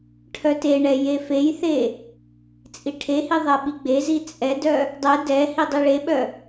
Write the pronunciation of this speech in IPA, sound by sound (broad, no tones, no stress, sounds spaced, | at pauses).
ʈʰ œ t e ɳ ɛ j e f e j θ e | t͡sʼ i ʈʰ e h i ðˤ ɛ ɓ i ɡ͡b e z i t͡sʼ ɛ d œ | dˤ ɛ d ɛ h i dˤ i ɭ e ɓ œ